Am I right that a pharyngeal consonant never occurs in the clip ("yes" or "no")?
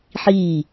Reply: no